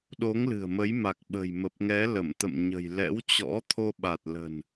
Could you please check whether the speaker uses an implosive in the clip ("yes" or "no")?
yes